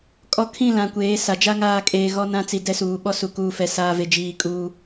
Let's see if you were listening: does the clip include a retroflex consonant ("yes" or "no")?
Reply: no